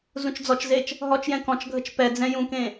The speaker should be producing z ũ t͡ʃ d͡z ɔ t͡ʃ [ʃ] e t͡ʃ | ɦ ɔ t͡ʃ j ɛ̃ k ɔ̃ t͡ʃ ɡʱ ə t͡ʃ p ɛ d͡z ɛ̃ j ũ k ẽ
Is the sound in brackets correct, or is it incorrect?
incorrect